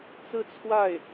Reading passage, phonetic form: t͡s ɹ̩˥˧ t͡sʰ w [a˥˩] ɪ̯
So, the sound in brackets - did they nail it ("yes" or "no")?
yes